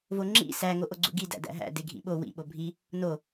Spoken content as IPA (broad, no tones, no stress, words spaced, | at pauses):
voŋ͡ǁḭ sæ ŋoʔoɡ͡ǀṵɡi dæ̰dæ̰ɦæ̰ deɡʱḭɓo wḭ ɓobʱi | no